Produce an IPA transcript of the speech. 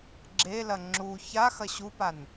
ɡ͡ǁelɐ ŋ͡ǁu ça xɐɕupan

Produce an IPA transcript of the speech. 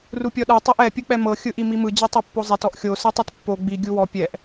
rupʲɔɗɤ tˤɛʔɛ pʲɯk͡pɛmɤ xʲɯʔimimɯ d͡ʑitˤopːozˤet ɔʔxʲo sɯtˤɯtpːo ɡ͡bi ɡʲuwɔ pʲɛʔ

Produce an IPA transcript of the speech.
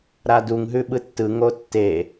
ɾaduŋ ɦʉɓɯtːɯ ŋotːe

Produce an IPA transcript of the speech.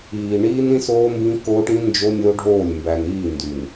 iː˨ ɳiː˦nĩ˦s oː˦mbĩ˦ koː˦ʈĩ˦ nd͡ʒo˦nʲo˦ ɖʱoː˦˨lʲ mbæ˨niː˦˨ ndy˨n

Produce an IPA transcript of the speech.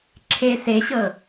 ǁʰe seɕɤ

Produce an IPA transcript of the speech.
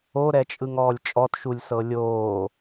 oɾɛt͡ʃʼɯŋ ɔːlʲt͡ʃʼɔtʃulʲsɤ lʲoː

